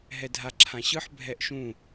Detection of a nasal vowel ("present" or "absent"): present